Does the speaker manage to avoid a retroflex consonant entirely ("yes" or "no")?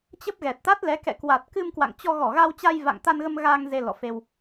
yes